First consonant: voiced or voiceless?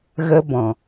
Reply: voiced